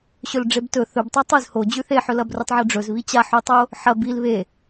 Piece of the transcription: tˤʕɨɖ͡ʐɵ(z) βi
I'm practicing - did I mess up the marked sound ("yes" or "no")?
no